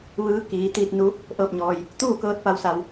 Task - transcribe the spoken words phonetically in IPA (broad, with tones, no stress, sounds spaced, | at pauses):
ʋ ɯː˧˥ k iː˩˧ t̪ iː˧ t̚ n u˧˥ | ʔ ɤː˥˨ p̚ ɲ ɔː˧ j | t̪ uː˥˨ k ɤː˧ t̚ p a˧˥ w s a˧ w